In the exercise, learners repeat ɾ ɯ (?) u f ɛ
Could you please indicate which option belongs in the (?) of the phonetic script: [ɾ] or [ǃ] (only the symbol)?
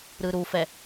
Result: ɾ